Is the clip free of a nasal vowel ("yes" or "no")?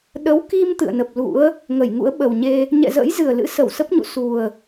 yes